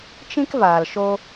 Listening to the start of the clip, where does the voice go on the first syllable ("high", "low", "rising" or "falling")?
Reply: high